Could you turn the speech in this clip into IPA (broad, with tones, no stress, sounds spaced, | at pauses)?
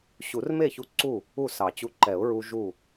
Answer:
ɕ u˨˩˦ r m e˥˩ ç u˧ ǀ u˥˩ | u˥˩ s ɑ˨˩˦ t͡ɕ u˧ ǃ ɛ˨˩˦ ʊ̯ ɹ u˧ ʒ u˧˩